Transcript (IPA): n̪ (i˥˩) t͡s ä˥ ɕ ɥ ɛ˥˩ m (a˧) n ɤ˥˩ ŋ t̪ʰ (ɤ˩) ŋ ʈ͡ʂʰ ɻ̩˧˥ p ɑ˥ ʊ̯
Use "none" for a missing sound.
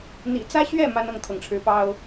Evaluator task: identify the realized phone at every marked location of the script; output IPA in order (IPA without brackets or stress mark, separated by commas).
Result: ḭ˨˩, a˥, ɤ˩